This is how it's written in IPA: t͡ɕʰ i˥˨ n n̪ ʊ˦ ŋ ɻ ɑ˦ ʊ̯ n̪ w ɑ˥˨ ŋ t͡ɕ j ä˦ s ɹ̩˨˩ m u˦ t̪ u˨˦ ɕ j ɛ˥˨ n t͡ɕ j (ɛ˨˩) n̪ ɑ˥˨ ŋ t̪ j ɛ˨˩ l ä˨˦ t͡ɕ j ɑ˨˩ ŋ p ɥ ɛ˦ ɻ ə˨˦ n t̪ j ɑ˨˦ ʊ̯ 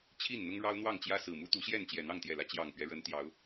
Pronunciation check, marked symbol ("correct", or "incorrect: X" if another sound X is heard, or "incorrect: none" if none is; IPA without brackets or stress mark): correct